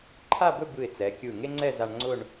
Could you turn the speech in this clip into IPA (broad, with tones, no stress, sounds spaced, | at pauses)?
ǃʰ a˥˧ b ɵ˥˧ b ɯ˧˩ ɪ̯ t͡s ɛ˩˧ kʲ ɯ˧˩ ŋ e˥ ŋ͡ǀ ɛ˥˧ z a˧ ɳ ŋ͡ǀ ʊ˥˧ ɳ